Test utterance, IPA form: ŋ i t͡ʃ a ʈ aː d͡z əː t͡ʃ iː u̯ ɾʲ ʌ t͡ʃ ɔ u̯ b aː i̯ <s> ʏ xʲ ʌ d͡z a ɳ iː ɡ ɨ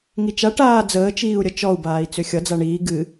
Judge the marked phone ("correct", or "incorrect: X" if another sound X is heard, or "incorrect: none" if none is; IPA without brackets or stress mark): incorrect: t͡s